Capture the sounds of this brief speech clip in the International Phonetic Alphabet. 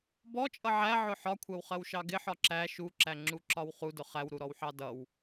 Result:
b ɔ t͡ʃʼ ʌ ʕ æ ʕ ʊ ħ ɒ kʷʰ ɜ w χ ɜ w ʃ ɑ ɡ ɪ ħ ɒ ǁ æ ʃ u ǁ æ ŋ͡ǁ u ǁ ɒ w χ u d ʊ χ æ w ɾ u ɾ ɔ w ħ ɑ d ʌ w

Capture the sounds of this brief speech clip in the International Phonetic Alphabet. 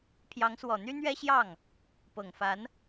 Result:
pʰ j ɑ˧˥ ŋ s w ɔ˨˩ n̪ y˥ n̪ ɥ ɛ˥ ɕ j ɑ˥˩ ŋ | p ɤ˨˩ ŋ f a˧˥ n

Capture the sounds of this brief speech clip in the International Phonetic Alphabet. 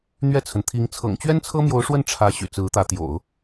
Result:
n̪ ɥ ɛ˥˩ t͡sʰ ə˩ n t̪ʰ i˧˥ ŋ t͡sʰ ɤ̰˨˩ ŋ t͡ɕ ɥ ɛ˥ n t͡sʰ ɤ˥ m j o˧˥ ʊ̯ ʂ w ə˥˩ n ʈ͡ʂʰ ä˧˥ ɕ y̰˨˩ t͡s ɹ̩˧˥ t̪ ä˧˥ t̪ j o̰˨˩˦ ʊ̯

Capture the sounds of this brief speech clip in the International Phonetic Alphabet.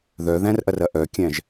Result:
ð œ ð æ̃ r ʔ ɐ r ɐ ʔ œ kʲ æ̃ ʒ

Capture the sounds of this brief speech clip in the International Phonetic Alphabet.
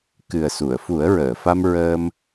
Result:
k ɨ˨˩ ə̯ s u˨˩˨ ə̯ f u˨˩˦ ə̯ ɹ əː˨˩˨ f a˧ m ɹ əː˧ m

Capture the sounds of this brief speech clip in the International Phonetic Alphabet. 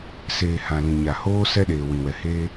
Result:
s eː˨ h ã˨ l ĩ˨ ɲ a˨ h oː˦ s ɛ˦ ɗ eː˨ w ĩ˨ w ɛ˨ h e˦

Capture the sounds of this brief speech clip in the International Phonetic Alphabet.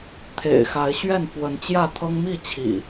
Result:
t̪ʰ ḛ˨˩ ɪ̯ x a˨˦ ɪ̯ ɕ ɥ ɛ˥˨ n f w ə˨˦ n t͡ɕ j ä˥˨ t̪ʰ ɤ˦ ŋ m i˥˨ t͡ɕʰ ḭ˨˩

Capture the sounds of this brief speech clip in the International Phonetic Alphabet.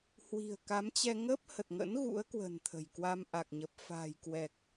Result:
h w i̤˨˩ ə̯ k a˨˦ m t͡ɕ ɛ˧ ŋ ə˦˥ p̚ h ə˨˩ t̚ ŋ ə̰˧˥ n ɣ ṵ˧˥ ə̯ k w ə̤˨˩ n t̪ʰ ə̤˨˩ j k w a˧ m ʔ a˨˩ k̚ ɲ ə˨˩ p̚ f a̤ː˨˩ j k w ɛ˨˩ k̚

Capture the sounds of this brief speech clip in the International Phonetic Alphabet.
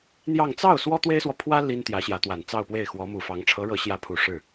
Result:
n̪ j ɑ˥˧ ŋ t͡s ɑ˥˩ ʊ̯ s w ɔ˥ t̪ w e˥ ɪ̯ s w ɔ˨ pʰ w ä˥ l i˥ n t̪ j ä˧˥ ɕ j ä˧˥ t̪ w a˨˩ n t͡s ɑ˥˧ ʊ̯ p w e˥˩ ɪ̯ x w ɔ˧˥ m u˨˩ f ɑ˧˥ ŋ ʈ͡ʂʰ ɤ˧˥ ɻ ɤ˧˥ ɕ j ä˧˥ pʰ u˨˩ ʂ ɻ̩˥˩

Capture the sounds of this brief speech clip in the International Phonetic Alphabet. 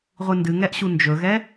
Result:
ʁʷ ɨ n d ɨ ŋ ɛ ʔ ɕ u n d͡ʒ ɵ ɣ ɛ

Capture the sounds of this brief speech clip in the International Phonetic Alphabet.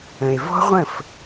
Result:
ə̃˨ e̯ v ɔ̤˦ ʁʷ ə̃˦˨ f

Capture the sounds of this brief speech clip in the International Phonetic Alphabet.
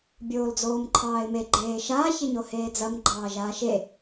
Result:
bʲ oː l d͡z oː m ǃʰ ɑː ɪ̯ m e ɡ͡ǃ eː ʃ a ç e ɲ o h eː d͡z ɐ m ɡ͡ǃ ɑː ʒ aː ʃ e

